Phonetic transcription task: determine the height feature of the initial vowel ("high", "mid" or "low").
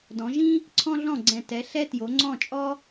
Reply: mid